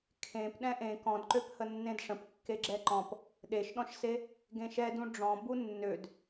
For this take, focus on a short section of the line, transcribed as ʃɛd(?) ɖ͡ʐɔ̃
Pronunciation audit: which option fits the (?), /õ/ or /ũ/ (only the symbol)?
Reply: ũ